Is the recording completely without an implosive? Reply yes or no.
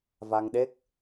no